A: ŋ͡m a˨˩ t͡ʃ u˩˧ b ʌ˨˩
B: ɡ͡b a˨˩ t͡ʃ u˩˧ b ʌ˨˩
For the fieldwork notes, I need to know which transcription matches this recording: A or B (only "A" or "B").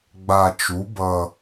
B